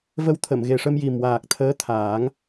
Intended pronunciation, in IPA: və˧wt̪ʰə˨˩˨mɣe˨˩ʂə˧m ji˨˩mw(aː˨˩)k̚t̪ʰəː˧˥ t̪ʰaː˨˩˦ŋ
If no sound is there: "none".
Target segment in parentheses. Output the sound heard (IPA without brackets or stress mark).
aː˨˩